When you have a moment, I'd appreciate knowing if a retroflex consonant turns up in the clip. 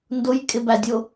no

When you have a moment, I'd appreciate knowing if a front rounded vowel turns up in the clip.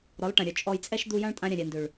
yes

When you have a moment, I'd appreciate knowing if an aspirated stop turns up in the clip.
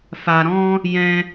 no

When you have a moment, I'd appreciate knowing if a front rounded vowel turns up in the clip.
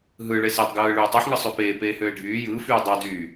yes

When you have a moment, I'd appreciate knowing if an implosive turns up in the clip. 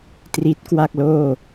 no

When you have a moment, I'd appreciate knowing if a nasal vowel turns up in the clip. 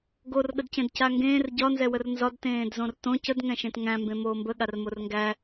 yes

